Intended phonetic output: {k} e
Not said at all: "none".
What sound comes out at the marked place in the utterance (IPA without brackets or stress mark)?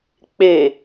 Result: k͡p